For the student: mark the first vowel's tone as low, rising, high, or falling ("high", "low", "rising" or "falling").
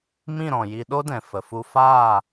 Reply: falling